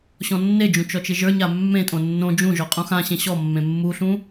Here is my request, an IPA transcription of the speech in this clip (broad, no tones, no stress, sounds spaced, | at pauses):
ɕ ɔ̃ nː e d͡ʒ ũ t͡ʃ ɔ t͡ʃ ɪ ʒ ə˞ ɲ a mː ẽ tʼ õ nː õ d͡ʒ ũ ʒ ɔ qʼ ũ x ã ɕ ẽ ɕ ɔ mː ẽ mː u ɬ ũ